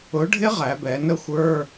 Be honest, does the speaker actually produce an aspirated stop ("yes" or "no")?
no